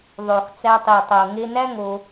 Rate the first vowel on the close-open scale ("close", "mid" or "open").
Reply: mid